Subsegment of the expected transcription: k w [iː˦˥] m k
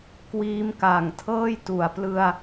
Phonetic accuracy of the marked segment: correct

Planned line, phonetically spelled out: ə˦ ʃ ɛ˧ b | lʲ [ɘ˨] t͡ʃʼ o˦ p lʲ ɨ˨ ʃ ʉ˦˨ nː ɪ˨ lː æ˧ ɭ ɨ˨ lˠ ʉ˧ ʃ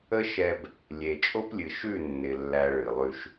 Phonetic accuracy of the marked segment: incorrect: e˨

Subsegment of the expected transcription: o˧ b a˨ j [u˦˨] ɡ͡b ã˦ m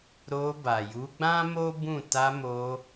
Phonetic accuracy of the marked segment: incorrect: u˨˦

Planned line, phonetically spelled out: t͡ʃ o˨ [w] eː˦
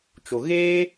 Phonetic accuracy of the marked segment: incorrect: ɣ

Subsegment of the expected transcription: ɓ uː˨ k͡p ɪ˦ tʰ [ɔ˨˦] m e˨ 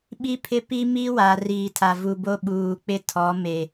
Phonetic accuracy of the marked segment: correct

